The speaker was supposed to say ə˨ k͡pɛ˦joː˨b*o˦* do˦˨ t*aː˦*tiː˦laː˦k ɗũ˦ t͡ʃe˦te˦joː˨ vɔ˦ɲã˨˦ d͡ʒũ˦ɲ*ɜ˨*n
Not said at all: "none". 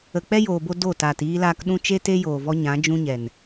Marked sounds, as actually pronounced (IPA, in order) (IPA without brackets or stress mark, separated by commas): o˧, aː˨, ɛ˨